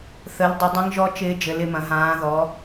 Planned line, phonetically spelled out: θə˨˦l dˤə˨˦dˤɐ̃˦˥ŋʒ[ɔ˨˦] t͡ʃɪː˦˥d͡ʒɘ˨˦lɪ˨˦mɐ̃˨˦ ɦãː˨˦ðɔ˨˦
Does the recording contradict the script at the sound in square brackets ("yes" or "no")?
yes